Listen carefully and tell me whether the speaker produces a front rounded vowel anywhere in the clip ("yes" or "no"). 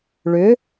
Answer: yes